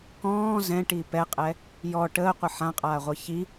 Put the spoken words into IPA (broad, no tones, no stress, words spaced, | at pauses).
kɔ̃ː zɛ̃ʈi pɛqʼɛ | jɔ ʈəːqʷə ħãqʼaːʁʷɤ çi